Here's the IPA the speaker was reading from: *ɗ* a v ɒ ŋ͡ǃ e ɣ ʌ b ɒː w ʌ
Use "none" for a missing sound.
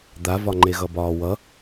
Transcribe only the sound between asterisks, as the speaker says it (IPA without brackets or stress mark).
d̪